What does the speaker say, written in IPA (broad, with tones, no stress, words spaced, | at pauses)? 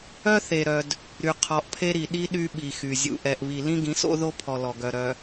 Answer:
œ˦θe˨ɾœ˨d | ɾy˨ qʰɔ˨ʔpʰe˦ɾi˨ ɗi˦ ɗy˦ɓi˨xy˨ zʲṵ˨ʔɛ˨ʔ βi˨lĩ˦ɡĩ˨˦so̰˦ ðo˦pʰɔ˨ lɔ˨ɡœ˨ɾœ˨